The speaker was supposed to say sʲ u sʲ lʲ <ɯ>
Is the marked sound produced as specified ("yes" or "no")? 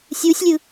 yes